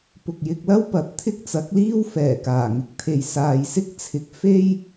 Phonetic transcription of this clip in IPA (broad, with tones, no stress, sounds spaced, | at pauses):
p ʊ˨ k̚ j ɪ˧ k̚ l ɐ˥ w p ɐ˨˥ t̚ t̪ʰ ɪ˥ k̚ t͡s ɐ˨˥ k̚ l iː˥ w f ɛː˨˩ k aː˨˩ ŋ ɪ˧ k̚ t̪ʰ e˨ j s aː˨ j s ɪ˥ k̚ t͡sʰ ɪ˨ k̚ f e˥ j